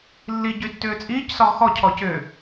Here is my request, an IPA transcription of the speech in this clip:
lː i ɟ y tː ʏː t͡sʼ iː c s ɔ ʁ x ɔ cʰ ɔ c ʏ

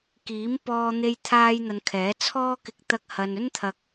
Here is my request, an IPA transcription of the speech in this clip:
k iː˨˥ m p ɔː˧ n̪ e˧ j t̪ʰ aː˥ j n̪ ɐ˧ n kʰ ɛː˨˥ t͡sʰ ɔː˧ k ɪ˨ k̚ t̪ ɐ˧ k̚ h ɐ˨ n ɵ˥ n t̪ʰ ɐ˨ k̚

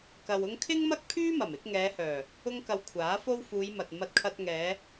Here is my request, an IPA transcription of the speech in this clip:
k ɐ˧ w ʊ˥ ŋ kʰ ɪ˥ ŋ m ɐ˥ k̚ pʰ yː˥ m ɐ˨˩ m ɪ˨˥ k̚ ŋ ɛː˨˧ h œː˨˩ | ʊ˥ ŋ k ɐ˧ w kʷʰ aː˨˥ f o˥ w f uː˨˧ j m ɐ˨ t̚ m ɐ˧ t̚ kʰ ɐ˧ t̚ ŋ ɛː˨˧

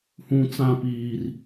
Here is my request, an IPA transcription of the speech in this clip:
h ũ˦ t͡s ã˦ p iː˦ r

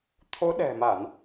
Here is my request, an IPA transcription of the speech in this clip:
t̪ʰ o˨˦ ɗ ɛ̤˨˩ m a˧˩˨ n

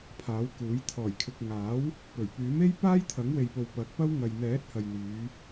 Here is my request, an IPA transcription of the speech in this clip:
pʰ aː˨˥ w k uː˨˥ j t̪ʰ ɔː˨˩ j kʰ ɪ˨ k̚ ŋ aː˨˥ w | p ɵ˨˩ ɥ p yː˨˥ m e˥ j p aː˥ j t̪ʰ ɐ˨˥ ŋ w e˨ j p o˨ w p ɐ˨˥ k̚ p ɐ˥ w ŋ ɐ˨ j n̪ ɛː˨˥ t̚ h ɐ˨ j n̪ yː˨˧

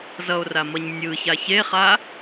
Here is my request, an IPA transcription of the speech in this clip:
z ʌ o̯ r a m ʌ ɲ nʲ ɯ ç a ç e χ a

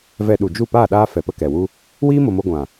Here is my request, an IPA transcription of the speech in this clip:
v ɛ˧ ɗ u˨ d͡ʒ u˦˨ p aː˦˨ ɗ aː˧ f ɛ˨ p ə˧ k ɛ˨ w u˦ | w iː˦ m o˨ m o˧ ɡʷ ã˨

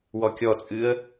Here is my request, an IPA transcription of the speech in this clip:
w ɔ kʲ ɔ t͡sʼ ɨ ə̯

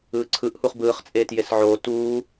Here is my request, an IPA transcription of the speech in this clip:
ɯː ǀʰ ɯ ʔ h u χ b ɯː χ t͡sʼ eː t j e s ʕ oː t uː

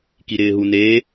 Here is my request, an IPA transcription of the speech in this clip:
k i ɾ ɪː ɦ u n eː

